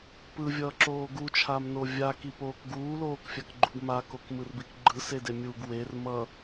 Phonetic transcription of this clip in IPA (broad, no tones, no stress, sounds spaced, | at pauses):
p ɯ vʲ ʌː ǁ oː ɡ u t͡ʃʰ a m n o vʲ a k i p oː k ɡ uː l oː k fʲ a k ɡ͡ǃ u ɡ m a k o k m ɯ r b i k ɡ͡ǃ ɯ s e d e mʲ u ɡ w e r m ʌ